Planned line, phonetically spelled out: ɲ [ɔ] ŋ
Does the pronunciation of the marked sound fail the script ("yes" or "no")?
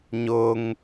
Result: yes